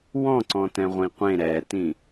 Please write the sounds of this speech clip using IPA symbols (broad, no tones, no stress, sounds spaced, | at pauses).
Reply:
w ɔ̃ ǀ ɔ̃ t ɛ̃ ʁʷ ĩ qʷ ẽ ɾ ɛ t ĩ